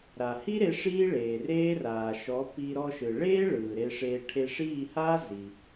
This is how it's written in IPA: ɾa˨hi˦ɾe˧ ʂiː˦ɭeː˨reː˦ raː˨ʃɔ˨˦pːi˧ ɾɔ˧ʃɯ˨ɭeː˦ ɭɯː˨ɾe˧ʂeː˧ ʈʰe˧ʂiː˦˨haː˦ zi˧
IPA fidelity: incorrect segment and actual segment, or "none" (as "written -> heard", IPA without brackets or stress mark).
none